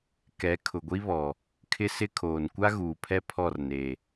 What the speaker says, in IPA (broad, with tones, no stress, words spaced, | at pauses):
kɛ˨˦kʰʊ˨ɡʷi˦βɔ˨ | kʰɪ˦sɪ˦kʰoː˨n kʷa˦ɣuː˨pʰɛ˦ pʰɔ˦˨rne˨